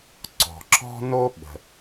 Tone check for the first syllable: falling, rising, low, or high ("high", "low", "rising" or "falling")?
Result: low